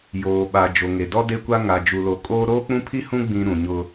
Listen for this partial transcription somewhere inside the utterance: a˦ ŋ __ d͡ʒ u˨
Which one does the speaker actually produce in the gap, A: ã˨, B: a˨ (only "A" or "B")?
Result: B